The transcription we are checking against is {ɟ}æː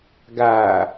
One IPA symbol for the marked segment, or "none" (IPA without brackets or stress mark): ɡ